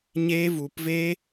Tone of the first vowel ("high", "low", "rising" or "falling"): high